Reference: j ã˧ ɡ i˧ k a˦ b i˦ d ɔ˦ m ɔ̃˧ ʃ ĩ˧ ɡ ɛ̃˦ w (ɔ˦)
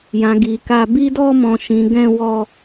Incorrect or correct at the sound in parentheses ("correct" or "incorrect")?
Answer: correct